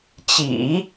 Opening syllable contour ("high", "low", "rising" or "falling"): low